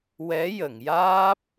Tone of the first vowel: rising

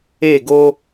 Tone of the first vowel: falling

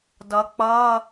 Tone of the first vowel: rising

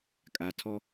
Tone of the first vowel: low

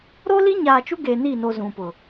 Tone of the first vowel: high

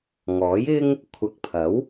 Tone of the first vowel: rising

